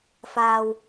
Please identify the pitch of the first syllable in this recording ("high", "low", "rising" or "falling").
low